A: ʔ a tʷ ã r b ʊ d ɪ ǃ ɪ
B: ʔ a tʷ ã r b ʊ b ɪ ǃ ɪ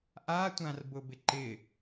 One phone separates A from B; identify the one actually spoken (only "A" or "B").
B